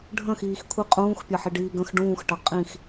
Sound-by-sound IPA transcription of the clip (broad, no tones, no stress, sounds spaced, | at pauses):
ɖʱ ə̃ x iː x kʷʰ i qʼ ũː x pʲ ɐ ħ i ɖ iː ɡ ə̃ x ɖ ũː x ʈ ɐ qʼ ĩ x